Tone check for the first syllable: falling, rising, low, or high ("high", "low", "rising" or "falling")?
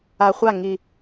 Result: low